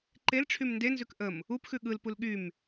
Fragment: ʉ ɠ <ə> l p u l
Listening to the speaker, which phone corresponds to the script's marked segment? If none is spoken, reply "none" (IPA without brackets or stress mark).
ɯ